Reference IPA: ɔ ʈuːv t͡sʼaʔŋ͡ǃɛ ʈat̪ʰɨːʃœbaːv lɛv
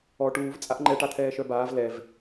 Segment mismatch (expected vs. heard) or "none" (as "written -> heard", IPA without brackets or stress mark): ɨː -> ɛː